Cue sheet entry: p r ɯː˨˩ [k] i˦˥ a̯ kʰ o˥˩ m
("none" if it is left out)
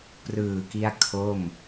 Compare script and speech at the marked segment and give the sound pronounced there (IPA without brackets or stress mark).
k